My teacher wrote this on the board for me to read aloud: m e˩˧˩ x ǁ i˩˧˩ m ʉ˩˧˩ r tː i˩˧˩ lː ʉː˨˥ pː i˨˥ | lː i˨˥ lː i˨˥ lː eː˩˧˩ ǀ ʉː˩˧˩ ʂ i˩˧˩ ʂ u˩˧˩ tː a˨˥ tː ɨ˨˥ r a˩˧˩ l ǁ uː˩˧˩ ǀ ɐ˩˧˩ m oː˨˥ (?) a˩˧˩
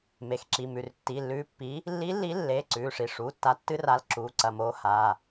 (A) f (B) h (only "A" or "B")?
B